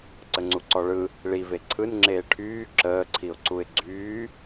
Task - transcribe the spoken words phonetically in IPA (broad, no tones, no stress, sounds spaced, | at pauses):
ǀ ə ŋ͡ǀ u ǀ ɔ ɭ ɯ | ɭ i v e ǀʰ ɯ n ŋ͡ǁ eː ʈʰ yː ǁ əː ǀʰ i ʊ̯ ǀ u ɪ̯ ɡ͡ǀ yː